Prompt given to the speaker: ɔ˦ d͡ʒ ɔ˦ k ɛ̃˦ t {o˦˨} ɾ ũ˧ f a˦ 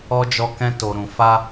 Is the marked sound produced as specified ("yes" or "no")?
no